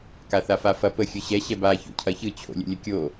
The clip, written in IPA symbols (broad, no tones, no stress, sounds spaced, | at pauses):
k a θ a f a f ɐ p ə xʲ ɯ ɕ ɛ ɕ ɛ b a ç o̰ cʰ ɐ ç ɯ t͡ɕʰ o̰ lʲ ə̰ lʲ ə kʲ o